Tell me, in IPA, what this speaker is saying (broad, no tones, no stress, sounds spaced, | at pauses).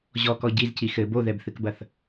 ʑ ɔ k ɔ ɟ i z c i x ɘ b o ð ɛ b θ ɨ k b ɐ θ